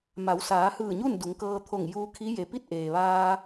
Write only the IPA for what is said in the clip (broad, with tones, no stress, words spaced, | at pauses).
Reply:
ma˩˧wsaː˩˧hɯː˧˩ɲu˥˨n du˩˧ŋkɤː˧t̪ʰo˧˩ŋ juː˧kʰi˧˥ je˩pi˥˨t̚ ʔeː˩ʋaː˧